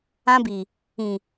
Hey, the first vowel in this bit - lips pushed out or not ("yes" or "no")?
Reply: no